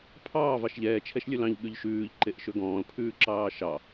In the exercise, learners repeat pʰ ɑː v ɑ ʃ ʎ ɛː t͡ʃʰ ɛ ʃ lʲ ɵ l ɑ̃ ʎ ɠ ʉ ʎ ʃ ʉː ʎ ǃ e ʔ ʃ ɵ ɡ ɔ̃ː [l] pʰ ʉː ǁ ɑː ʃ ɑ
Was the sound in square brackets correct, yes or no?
yes